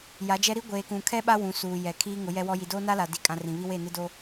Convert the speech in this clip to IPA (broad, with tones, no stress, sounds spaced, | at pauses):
j a˨˦ d͡ʒ ɛ˦ ɾ i˦ ɡʷ eː˨ k ũ˨ kʰ ɛ˦ ɓ a˦ w ũ˨ s uː˨ j ɛ˨ kʰ iː˦ ŋ ʊ˨˦ j ɛ˦ w ɔ˦ j i˨ d oː˦ n a˦ l a˨ d i˨ kʼ ã˨ r ĩ˨ β i˦ w e˦˨ n ɪ˦ d o˦